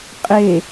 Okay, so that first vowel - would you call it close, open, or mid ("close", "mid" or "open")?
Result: mid